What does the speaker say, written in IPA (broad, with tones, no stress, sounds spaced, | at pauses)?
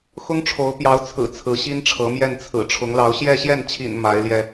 x ʊ˥ ŋ ʈ͡ʂʰ o˧˥ ʊ̯ p j ɑ˧˥ ʊ̯ t͡sʰ ɹ̩˨˩ t͡sʰ ɹ̩˧˥ ɕ i˥ n ʈ͡ʂʰ ɤ˧˥ m j ɛ˥˩ n t͡sʰ ɹ̩˨˩ ʈ͡ʂʰ ʊ˧˥ ŋ l ɑ˧˥ ʊ̯ ɕ j ɛ˥˧ ɕ j ɛ˥˩ n t͡ɕʰ ḭ˨˩ n m a˧˥ ɪ̯ l j ɛ˧